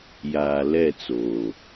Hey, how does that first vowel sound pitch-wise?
low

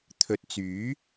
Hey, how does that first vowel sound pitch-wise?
low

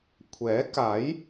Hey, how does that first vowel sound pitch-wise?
rising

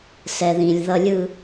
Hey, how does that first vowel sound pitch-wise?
low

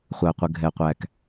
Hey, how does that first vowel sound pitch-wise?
low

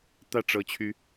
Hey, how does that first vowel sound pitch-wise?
falling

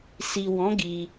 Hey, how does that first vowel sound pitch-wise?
low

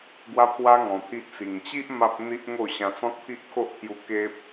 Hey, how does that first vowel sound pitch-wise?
high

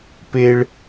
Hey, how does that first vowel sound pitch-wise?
low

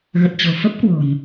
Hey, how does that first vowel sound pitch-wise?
low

